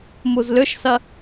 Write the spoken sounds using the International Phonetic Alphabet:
muzlʏʃsɐ

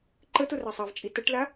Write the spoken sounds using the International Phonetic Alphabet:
ǃətʊ rasˤavt͡ʃʼi təʈla

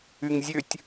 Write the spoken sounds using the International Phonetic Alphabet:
yŋzʲøtʲ

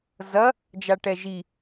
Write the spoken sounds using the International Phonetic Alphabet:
zɐ | d͡ʒaʈɛʒi

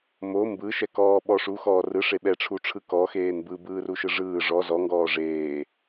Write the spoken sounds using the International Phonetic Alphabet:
mo mbɯʃɛ kɔːɓɔʂu xɔːrɯ ʂeɓɛʈ͡ʂʰuʈ͡ʂʰɯ kɔ xeːnbɯbɯː ruʃɯʐɯː ʐɔ zɔŋɡɔː ʐeː

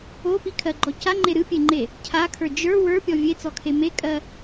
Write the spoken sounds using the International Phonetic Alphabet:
opikʰɜɡ͡ǃɔ caŋ͡ǃe ɾɨpʲeŋ͡ǃe | cʰakʰə˞ d͡ʒə˞ wə˞pʲɔ vʲet͡sɔkʰe mekʼɜ

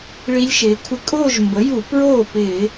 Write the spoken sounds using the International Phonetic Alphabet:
ɭi˦˥lʲʃɪː˩˧kʷʰɪ˥˩ kʼoː˥˧ʒmbə˩˥ju˧˩˧ pɹoː˥˩pɪː˧˩˧

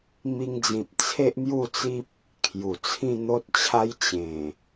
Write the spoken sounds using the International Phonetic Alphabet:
mi˧ŋd͡zĩ˨p̚ t͡sʰe˦ʔmju˥˧t͡si˦p̚ | kʰju˨˩t͡sʰĩ˥˧n̪o˦t̚t͡ɕʰa˦j t͡ɕẽ˨˩

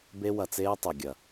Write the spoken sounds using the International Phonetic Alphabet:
be˦wɐ˧t͡seː˦ tˤe˨ɡʲɐ˨

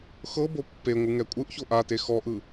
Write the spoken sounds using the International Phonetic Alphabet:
xɤbo pːeŋʷɯŋɛ kʷʼɯʔço ʔate xɔʔɯ

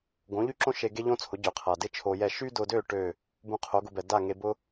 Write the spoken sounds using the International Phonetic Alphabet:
ɡõ˩˥ʎy˥ǁõ˥ ʃe˧ ɡe˥ʎõ˥t͡sʰʊ˩˥ ɟø˩qʰa˩ dɪ˥t͡ʃʰo˧jɛ˥˩ ʃy˥dʊ˧dø˥˩ ʈø˥˩ | bũ˧qʰo˩˥ɡʊ˧bɛ˩ da˥˩ ŋe˧bʊ˥

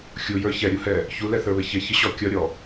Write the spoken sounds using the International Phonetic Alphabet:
xʲujə˞ çɛɾʲuhɛ | çulɛθə˞βɪ çɪçɪɕɔ kʲʌɾʲɔ

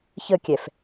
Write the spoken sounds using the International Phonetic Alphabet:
çəkʲɛf

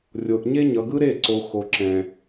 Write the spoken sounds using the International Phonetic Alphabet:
rʲo˨ʔɲe˦ ɲʌ˨ɡɯ˦ɾe˦˨ǀo˨ xo˨ǁɛ̃˨

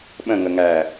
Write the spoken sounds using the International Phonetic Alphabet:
ɓə̃ŋəŋæː

